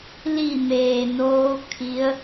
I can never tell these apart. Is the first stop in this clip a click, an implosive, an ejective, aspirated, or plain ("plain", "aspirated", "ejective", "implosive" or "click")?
aspirated